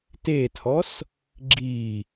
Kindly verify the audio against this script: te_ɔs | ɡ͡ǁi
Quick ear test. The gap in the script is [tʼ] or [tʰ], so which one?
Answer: tʰ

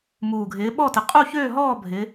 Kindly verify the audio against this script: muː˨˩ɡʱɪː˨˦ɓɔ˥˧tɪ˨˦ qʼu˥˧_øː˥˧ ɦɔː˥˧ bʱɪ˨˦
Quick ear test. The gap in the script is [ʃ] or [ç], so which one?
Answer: ç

